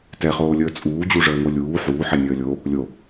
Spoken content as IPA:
t ɛ χ oː lʲ əː t͡sʼ uː d͡ʑ u ʐ əː ŋ o lʲ uː ħ uː ħ ɛ nʲ əː lʲ o | lʲ o

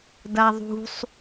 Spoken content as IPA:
d a ðˤ ṳ sˤ

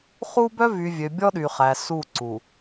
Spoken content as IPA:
χ u˦ b œ˦ v y˨ vʲ ø˨ bʲ ɔ˦ ɗ y˨ χ æ˨ s u˦˨ ǀ u˨

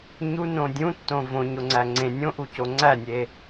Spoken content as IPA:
ɲ u n õ dʲ ũ tː õ v õ ɲ o ŋ͡ǀ æ ŋ͡ǀ ẽ nʲ õ ʔ u c o ŋ͡ǀ æ nʲ e

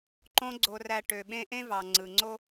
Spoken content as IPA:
ǃ õ˦ ɡ͡ǀ o˨ r æ˨ ʈ ø˨ ɓ ẽ˦ ʔ ẽ˦ v ɑ˨ ŋ͡ǀ ɯ˨ ŋ͡ǀ o˦

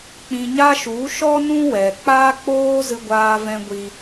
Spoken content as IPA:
k͡p ĩ˧ ɲ a˦ ʃ u˨˦ ʃ ɔ˦ n ũ˦ w ɛ˨ k͡p aː˦ k͡p oː˦ z ɨ˧ ɡʷ aː˧ v ɛ̃˧ ɡʷ i˧

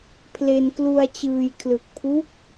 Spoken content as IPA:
pʰ l e˧ n k l u˧ a̯ t͡ɕ ɯː˧ j kʰ l ɯ˨˩ k̚ pʰ u˦˥ k̚

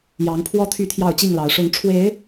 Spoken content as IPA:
j ɑ˨˦ ŋ pʰ w ɔ˦ t̪ʰ y˥˨ t̪ʰ j ɑ˥˨ ʊ̯ t͡ɕ i˥˨ ŋ l ɑ˨˦ ʊ̯ ʂ ʊ˨˦ ŋ ʈ͡ʂʰ w e˨˦ ɪ̯

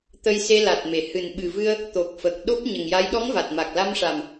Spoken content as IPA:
t̪ ə˧ j s e˧ l a˨˩ t̚ m e˨˩ h ɨ˨˩ n ɓ ɨ˨˩ v ɨ˧ ə̯ | t̪ o˨˩ k̚ f ə˨˩ k̚ ɗ o˦˥ p̚ ɲ ə˨˩ ŋ j a˧˥ j ɗ ɔ˧˥ ŋ v a˨˩ t̚ m a˨˩ k̚ l a˧ m ʂ a˨˩ m

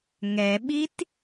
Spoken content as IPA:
ŋ ɛ ɓ i t

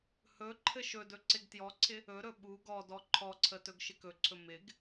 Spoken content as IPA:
h ɵ ǃʰ ɘ ʃ ɵ d ɵ ǀ ɪ ɡ t j ɔ ǀʰ ɪ | ɵ ɾ ɵ ɓ u ɡ ɔ d ɔ ǃʰ ɔ ǀʰ ə t ɵ ɡ ʃ ɪ k ɵ ǀʰ ɵ m ɪ ɡ

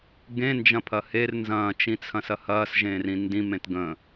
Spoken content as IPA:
ɡ ẽ n d͡ʒ ɐ̃ pʰ ɐ h e r n z ɐ̃ː t͡ʃ ĩ t͡sʰ ɐ̃ s ɐ h ɐː s ʒ ẽː r ĩ n d ĩ m ẽ t ɡ ə̃

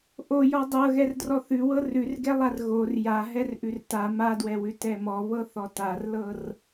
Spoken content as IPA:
ʔ o j ɔ dˤ ɤ ɣ ɛ r d r ɔ θ ʉ w ɤ r ʉ r ɡ ɛ lˠ a r ɣ o r j a ɦ ɛ r ʔ ʉ r t a m a d w ɛ w ʉ t ɛ m ɔ β ɤ θ ɔ t a r l ɤ r

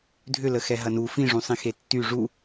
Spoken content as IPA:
dʱ ʏ l ə x ɛ ɦ ɐ n u f ĩ ʐ ũ sˤ ĩ x e tː y ʐ u

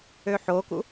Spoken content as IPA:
ø ħ o k ṵ

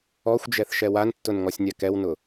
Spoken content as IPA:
ɔ xʷ d͡ʒ ɛ θ ʃ ɛ w a n tː ʊ n ŋ ɔ sʲ nʲ a k ɛ w n ʊ

